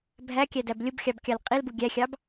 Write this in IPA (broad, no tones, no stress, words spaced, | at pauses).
bʱækʲædæb lʲʊbxʲɑbkʲɑl qʼilbu ɡʲæxʲɑb